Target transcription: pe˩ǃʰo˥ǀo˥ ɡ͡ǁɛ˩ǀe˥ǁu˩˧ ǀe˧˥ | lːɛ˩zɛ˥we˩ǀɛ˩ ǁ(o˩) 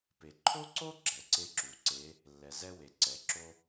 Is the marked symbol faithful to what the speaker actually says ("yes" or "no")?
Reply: no